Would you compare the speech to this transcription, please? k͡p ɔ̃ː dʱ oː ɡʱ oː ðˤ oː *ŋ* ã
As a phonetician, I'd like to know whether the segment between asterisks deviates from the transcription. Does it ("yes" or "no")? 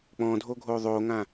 no